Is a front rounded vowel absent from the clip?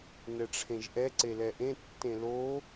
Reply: yes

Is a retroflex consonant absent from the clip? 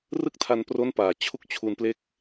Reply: yes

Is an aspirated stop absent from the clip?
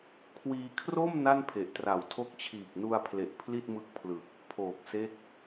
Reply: no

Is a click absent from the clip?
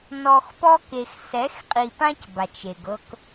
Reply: yes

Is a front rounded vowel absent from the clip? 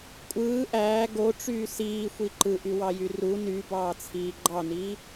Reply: no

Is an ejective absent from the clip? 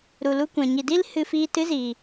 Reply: yes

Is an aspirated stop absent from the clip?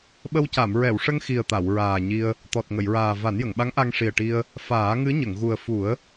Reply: yes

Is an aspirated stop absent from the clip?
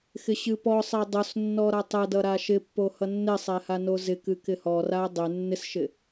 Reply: yes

